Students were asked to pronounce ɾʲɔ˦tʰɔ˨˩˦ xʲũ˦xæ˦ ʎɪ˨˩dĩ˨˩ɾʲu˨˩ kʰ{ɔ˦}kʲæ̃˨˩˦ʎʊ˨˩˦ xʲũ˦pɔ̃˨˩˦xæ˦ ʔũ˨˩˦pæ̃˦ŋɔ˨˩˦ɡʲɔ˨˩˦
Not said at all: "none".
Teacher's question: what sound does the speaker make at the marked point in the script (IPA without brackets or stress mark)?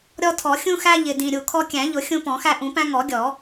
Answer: ɔ˦